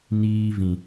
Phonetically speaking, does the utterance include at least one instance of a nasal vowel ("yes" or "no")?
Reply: yes